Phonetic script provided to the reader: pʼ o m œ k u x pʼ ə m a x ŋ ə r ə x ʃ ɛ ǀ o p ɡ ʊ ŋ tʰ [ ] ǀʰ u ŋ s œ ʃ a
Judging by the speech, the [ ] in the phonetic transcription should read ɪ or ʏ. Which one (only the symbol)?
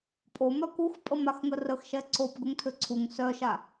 ʏ